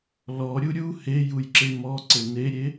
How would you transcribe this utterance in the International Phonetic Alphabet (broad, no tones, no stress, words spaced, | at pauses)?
lɔɾʲu ɾʲu hejujǁe mɔǀɘ neɾʲe